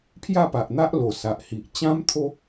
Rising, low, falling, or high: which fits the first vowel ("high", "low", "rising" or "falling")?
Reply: falling